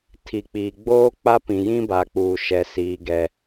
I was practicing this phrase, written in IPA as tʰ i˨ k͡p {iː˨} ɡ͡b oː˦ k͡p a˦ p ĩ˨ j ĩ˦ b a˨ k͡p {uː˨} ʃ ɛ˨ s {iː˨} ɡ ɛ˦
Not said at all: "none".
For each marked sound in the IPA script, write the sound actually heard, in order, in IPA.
iː˨, uː˨, iː˨

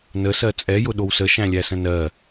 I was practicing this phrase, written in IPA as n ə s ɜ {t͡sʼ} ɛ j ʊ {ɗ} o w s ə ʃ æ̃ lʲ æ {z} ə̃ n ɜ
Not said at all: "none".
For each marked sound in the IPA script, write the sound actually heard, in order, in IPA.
t͡sʼ, ɗ, s

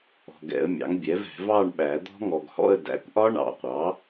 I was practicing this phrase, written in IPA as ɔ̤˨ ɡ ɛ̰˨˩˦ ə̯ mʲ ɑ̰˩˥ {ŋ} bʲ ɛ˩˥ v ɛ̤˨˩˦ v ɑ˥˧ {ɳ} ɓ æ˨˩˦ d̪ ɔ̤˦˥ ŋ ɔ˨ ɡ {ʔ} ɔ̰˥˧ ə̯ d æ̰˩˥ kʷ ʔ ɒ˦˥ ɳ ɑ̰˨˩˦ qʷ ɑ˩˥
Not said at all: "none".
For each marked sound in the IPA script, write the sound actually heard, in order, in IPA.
ŋ, ɳ, h

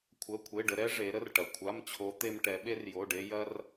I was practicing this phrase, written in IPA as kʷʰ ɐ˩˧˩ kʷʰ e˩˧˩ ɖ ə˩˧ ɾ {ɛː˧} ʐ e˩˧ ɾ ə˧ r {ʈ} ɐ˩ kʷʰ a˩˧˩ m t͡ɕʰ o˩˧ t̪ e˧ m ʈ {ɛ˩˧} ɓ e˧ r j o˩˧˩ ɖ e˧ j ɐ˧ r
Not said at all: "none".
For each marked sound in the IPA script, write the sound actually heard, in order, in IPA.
ɛ˧, ʈ, ɛ˩˧

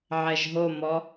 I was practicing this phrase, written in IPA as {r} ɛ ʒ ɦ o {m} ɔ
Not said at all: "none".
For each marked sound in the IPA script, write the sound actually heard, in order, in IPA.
ʕ, m

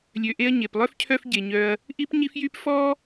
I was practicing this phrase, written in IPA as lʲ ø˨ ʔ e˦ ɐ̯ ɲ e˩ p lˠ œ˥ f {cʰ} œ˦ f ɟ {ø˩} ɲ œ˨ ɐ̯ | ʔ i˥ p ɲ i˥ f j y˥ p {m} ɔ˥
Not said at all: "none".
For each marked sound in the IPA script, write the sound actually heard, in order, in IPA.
cʰ, e˩, f

